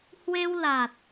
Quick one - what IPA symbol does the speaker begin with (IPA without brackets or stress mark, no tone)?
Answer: h